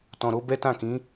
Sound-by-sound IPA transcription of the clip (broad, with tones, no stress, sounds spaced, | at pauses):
t ɔ̃˨ ɾ o˧ b ɛ˦ t ã˦˨ k ĩ˨˦